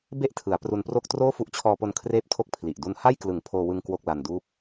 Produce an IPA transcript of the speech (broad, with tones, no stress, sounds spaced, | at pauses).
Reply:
b e˥˩ ʔ tʰ ɯ˩˦ a̯ p r u˧ n p r o˥˩ k̚ t r oː˥˩ f u˦˥ ʔ t͡ɕʰ ɔː˧ p o˧ n kʰ r eː˥˩ p̚ tʰ o˥˩ k̚ pʰ l i˨˩ ʔ d u˦˥ n h a˥˩ j k l ɯ˨˩ ŋ pʰ oː˧ w ɯ˧ ŋ k w o˥˩ k̚ l a˧ n d uː˥˩ p̚